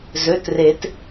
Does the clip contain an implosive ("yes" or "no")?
no